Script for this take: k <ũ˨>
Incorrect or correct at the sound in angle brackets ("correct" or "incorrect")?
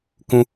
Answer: incorrect